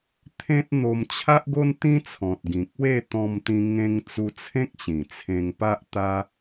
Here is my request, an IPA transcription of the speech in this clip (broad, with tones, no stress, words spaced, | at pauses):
t̪ʰẽ˦t̚n̪o˧m t͡ɕʰa˦ʔɡo˦nt̪ĩ˦t͡sʰɔ̃˨t̚ ɡĩ˨k̚we˥˧ t̪ɔ̃˧mt̪ĩ˧ ŋẽ˧ŋt͡su˧t͡sʰẽ˦k̚ ɕĩ˨˩t͡sʰẽ˧ŋpa˦ʔ t̪a˦